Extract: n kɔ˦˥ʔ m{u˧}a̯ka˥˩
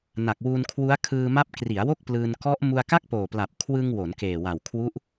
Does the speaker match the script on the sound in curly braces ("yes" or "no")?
yes